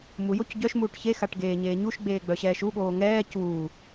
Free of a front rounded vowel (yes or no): no